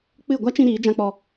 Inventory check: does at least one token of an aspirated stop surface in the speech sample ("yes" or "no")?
no